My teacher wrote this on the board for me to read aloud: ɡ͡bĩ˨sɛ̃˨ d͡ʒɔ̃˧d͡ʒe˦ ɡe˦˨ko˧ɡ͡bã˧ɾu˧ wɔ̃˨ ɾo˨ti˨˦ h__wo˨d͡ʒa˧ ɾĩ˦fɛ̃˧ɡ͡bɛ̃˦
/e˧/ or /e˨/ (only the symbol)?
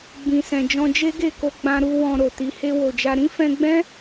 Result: e˧